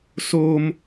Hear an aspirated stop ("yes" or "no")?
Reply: no